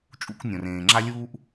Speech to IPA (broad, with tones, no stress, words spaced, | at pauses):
t͡ʃʼṵ˥knʲõ˩r ẽː˩ŋ͡ǁa˥lʲuː˥ʔ